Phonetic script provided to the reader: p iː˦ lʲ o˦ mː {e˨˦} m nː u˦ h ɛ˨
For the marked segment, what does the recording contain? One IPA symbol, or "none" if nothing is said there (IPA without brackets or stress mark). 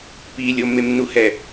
e˦